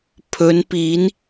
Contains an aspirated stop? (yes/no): yes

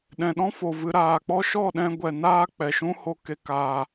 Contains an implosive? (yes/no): yes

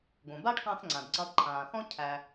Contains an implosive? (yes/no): no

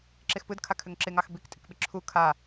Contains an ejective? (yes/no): yes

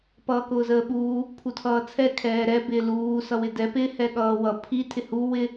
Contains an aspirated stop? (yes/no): yes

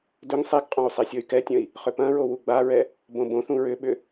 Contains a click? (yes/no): no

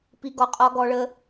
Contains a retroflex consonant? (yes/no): yes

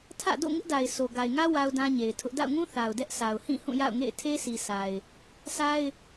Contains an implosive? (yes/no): no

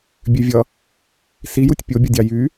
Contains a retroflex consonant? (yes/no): no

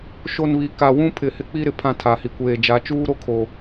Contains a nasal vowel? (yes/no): yes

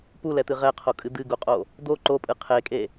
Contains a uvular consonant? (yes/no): yes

